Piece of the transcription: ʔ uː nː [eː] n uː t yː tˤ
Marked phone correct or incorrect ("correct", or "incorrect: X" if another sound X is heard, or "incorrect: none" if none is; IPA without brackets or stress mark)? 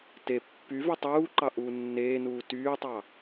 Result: correct